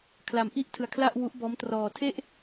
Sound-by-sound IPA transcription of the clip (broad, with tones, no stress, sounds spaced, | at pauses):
kʰ l a˧ m ʔ i˥˩ ʔ tʰ ɯ˧ a̯ kʰ l a˥˩ ʔ w u˦˥ ʔ b ɔː˦˥ m t r ɔː˧ tʰ e˥˩ ʔ